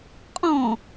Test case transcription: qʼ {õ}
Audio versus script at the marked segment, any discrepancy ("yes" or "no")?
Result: yes